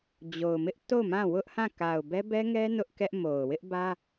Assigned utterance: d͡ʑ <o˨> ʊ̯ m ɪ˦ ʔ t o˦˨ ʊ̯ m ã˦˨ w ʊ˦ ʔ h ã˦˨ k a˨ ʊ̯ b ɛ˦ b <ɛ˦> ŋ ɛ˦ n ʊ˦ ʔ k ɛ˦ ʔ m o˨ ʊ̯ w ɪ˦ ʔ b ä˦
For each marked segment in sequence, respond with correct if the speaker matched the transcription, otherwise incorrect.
correct, correct

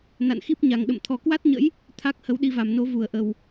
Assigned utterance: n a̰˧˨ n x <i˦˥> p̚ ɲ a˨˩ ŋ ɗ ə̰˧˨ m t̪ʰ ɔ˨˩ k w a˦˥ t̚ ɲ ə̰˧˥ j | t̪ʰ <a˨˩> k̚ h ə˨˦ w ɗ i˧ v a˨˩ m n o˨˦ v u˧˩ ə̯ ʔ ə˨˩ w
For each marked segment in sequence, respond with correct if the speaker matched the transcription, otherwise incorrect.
correct, incorrect: a˦˥

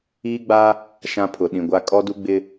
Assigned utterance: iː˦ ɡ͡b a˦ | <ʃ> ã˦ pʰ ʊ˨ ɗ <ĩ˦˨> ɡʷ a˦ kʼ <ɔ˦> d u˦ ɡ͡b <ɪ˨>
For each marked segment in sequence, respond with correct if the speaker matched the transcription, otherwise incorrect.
correct, incorrect: ĩ˨, correct, incorrect: ɪ˦

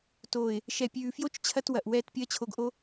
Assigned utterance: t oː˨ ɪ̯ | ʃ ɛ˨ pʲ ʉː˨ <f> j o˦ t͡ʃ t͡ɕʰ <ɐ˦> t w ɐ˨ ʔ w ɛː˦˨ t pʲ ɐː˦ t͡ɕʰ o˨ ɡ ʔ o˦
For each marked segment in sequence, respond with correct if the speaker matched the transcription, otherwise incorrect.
correct, correct

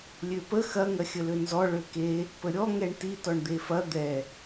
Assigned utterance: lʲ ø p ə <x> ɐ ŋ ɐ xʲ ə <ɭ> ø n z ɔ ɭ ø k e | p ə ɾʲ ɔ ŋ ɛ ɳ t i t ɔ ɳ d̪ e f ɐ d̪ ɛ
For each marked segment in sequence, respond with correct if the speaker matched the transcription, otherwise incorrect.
correct, incorrect: l

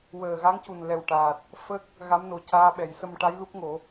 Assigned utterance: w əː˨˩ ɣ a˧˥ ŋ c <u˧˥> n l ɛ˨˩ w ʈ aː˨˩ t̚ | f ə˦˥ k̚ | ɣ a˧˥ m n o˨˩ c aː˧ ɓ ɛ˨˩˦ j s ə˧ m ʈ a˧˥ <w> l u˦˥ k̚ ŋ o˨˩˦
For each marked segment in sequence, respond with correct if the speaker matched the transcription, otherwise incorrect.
incorrect: u˨˩, incorrect: j

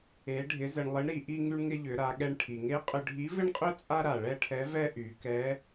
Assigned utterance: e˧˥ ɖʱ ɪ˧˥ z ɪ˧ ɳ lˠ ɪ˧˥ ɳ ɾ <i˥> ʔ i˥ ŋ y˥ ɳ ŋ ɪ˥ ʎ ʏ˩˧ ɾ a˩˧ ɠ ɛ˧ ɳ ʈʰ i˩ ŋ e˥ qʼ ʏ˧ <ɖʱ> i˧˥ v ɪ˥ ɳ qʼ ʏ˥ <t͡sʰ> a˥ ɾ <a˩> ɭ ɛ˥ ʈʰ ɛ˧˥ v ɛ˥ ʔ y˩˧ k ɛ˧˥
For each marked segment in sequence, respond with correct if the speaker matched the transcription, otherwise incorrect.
incorrect: i˩˧, correct, incorrect: t͡sʼ, correct

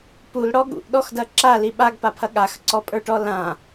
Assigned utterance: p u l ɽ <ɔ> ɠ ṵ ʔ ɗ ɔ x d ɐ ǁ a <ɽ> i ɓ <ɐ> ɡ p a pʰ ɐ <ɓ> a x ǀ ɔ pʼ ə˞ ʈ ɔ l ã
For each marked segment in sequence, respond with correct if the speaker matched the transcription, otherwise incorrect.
correct, incorrect: l, incorrect: a, incorrect: ɠ

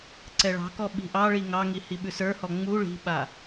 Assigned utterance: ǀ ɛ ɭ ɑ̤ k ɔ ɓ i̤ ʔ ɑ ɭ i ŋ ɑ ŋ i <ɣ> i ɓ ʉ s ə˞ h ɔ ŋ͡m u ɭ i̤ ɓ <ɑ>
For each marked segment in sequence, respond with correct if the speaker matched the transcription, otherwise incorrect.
incorrect: h, incorrect: a

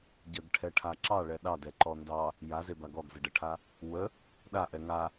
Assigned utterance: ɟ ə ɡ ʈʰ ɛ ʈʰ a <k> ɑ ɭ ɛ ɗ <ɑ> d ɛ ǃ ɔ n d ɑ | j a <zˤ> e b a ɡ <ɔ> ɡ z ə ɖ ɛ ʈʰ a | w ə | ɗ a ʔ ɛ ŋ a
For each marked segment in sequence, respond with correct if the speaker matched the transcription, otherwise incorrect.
incorrect: ǁ, correct, incorrect: z, correct

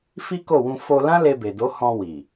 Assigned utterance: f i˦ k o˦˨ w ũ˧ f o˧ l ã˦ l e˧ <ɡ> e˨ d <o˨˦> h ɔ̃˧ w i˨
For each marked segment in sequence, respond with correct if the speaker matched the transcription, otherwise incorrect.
incorrect: b, correct

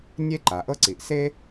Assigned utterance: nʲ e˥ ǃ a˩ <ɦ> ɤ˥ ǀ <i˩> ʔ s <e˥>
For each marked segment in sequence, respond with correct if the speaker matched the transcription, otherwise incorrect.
incorrect: ʔ, correct, correct

